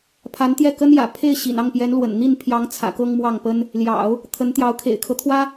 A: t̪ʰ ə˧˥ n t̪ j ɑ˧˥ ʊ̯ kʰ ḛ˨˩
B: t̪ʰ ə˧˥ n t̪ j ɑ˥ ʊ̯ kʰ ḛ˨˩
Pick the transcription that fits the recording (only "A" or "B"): A